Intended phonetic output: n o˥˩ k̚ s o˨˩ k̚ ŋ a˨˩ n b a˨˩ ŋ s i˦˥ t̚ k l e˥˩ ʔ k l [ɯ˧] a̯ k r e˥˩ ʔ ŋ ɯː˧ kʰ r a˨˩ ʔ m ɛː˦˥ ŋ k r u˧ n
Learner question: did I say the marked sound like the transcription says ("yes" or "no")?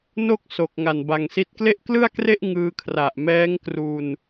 no